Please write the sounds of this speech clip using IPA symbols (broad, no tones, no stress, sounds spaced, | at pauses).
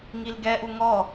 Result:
ŋ i l ɡ ɛ ʔ u ŋ ɔ